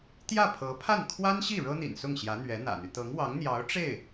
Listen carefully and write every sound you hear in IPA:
t̪jä˥˩pʰɤ˧˥pʰa˥˩n kʰwa˥nɕi˥˩ ɻɤ˥n̪ḭ˨˩nsʊ˥˩ŋ ɕjä˧˥ n̪ɥɛ˧˥n̪ä̰˨˩n̪y˦ t̪ɤ˧˥ŋwɑ˧˥ŋn̪jɑ˧˥ʊ̯ ʈ͡ʂe˥˩ɪ̯

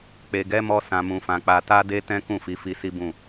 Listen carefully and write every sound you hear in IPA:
k͡pe˨ɡɛ˨˦mɔ˧ sã˨mũ˨fã˨ k͡pa˨ta˧de˧ tɛ̃˦kũ˦˨fi˨˦fi˧ si˦bũ˦˨

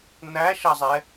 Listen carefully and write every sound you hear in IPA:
n̪æʃɐzˤɛ

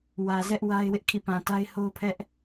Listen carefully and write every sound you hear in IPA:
wä˨zɛ˦ʔ wa˦ɪ̯wɪ˦ʔ kʰḭ˦˨pã˨ta˦ɪ̯ ho˦pʰɛ˦ʔ

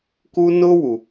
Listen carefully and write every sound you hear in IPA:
ku˦ nʊː˦wu˨

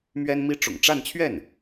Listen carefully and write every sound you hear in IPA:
mɥɛ˥nmi˥ ʈ͡ʂʊ̰˨˩ŋʈ͡ʂa˥˧nt͡ɕʰɥɛ˥˩n

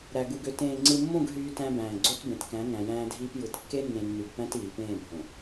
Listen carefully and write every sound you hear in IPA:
ɾæ˨ɡu˨ɡø˨ tẽː˨ŋ͡ǀɯ˨mːõ˦˨ɡ ɦyː˦tæ̃˦bæ̃ː˨ ɡ͡ǀo˦tbẽ˨tkæ̃˨˦ ŋæ̃˨jæ̃ː˦dʱiː˦p jɯ˨t kːe˦nːẽ˨ nːy˨ɡpæ̃˦t iː˨ pẽː˦˨bʱõ˨

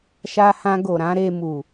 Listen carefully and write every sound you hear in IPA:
ʃa˧hã˧ɡo˨ɾã˨˦ ɾe˧mu˨

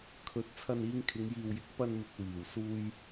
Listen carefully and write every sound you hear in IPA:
kʰɵ˨˥t̚ t͡sʰɐ˧niː˧ŋkʰɪ˨˧ŋ jiː˨wjɪ˨˥k̚ pɐ˧nmɪ˨k̚ wiː˨˩wsuː˧j

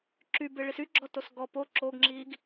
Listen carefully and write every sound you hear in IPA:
ǁybeɭis yɡ͡ǁɔtos ɡɔ po ǁoɡŋ͡ǁiɡ

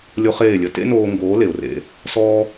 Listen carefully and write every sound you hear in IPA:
lʲo˦χeː˦˨lʲə˦ tḛ˦noː˧ŋɡoː˨˦ le˨ʊ̯rḛ˧ | sɔː˦

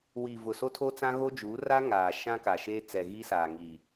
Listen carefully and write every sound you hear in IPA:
wi˨ vʊ˨so˦tʰo˦t͡sã˦ ɣo˦d͡ʒuː˨˦ ra˦ŋaː˨ ʃã˦ka˨ʃeː˦t͡sɛ˨ ɣi˦ saː˨ŋi˨

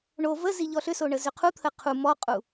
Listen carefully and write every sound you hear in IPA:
ɳo vəzi ʎɔɬʏso ɳəzʏqʰu t̪ʰəqʰu mɔqʼu

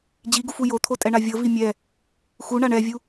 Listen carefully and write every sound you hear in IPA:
d͡ʑiɡufu jot̪ʰotʼɛɳa vʲɤvi mʲɛ | xuɳaɳ ɛvʲu

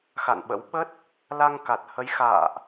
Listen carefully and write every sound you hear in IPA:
xa̰˧˨nɓə̰˧˥w ɓə˦˥t̚ | la˧ŋka˨˩t̚hə˨˦j xa̰ː˧˨ʔ

